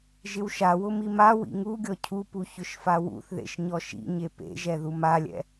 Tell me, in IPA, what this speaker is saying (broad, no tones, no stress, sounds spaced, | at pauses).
ʒ ɪ w ʃ a w ʊ m i m a w ḭ ŋ u ɡʲ ɔ cʰ u p u ç ʊ ʃ f a w ṵ θ ð ḛ ʃ ɲ ɔ ʃ ḭ ɲ e p ḛ ʒ ɛ ð u m a lʲ ɛ̰